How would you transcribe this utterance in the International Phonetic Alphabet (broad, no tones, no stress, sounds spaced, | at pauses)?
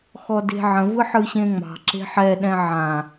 x ɔ d e̤ ʕ ə̃ v ɯ ħ ɯ ɕ ẽ ŋ͡m ɑ̤ ǁ e̤ ħ ɛ ɗ ɛ̃ ʕ ã